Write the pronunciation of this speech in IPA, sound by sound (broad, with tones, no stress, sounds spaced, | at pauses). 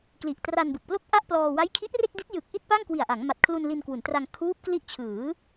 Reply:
k l i˨˩ ʔ t r a˧ n b ɯ˨˩ k̚ p l o˥˩ k̚ ʔ a˥˩ ʔ p l ɔː˧ w a˦˥ j kʰ i˦˥ ʔ r e˥˩ k̚ d i˦˥ t̚ j ɯ˨˩ k̚ ʔ i˥˩ t̚ p a˥˩ ŋ k w i˨˩ a̯ ʔ a˩˦ ŋ m a˨˩ t̚ kʰ l u˧ n l i˧ n k w u˩˦ n t r a˧ ŋ kʰ uː˦˥ p̚ k l i˦˥ ʔ t͡ɕʰ ɯː˩˦